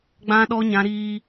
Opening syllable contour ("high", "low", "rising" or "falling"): high